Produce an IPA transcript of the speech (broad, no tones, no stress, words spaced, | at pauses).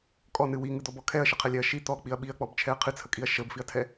kʼɔnɨ wiŋɨd̪ɔbɔ kʰɛɐ̯ʃəqʰɛlʲɛɐ̯ ʃi t̪ɔk͡piɐ̯ ɓiɐ̯k͡pɔbt͡ʃʰɛɐ̯ qʰɨt͡sʰəkʼiɐ̯ ʃəbfiɐ̯tʰɛ